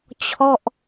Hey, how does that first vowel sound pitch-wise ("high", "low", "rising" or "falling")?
falling